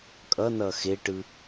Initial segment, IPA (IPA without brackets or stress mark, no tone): kʼ